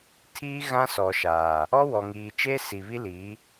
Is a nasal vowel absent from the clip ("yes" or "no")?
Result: no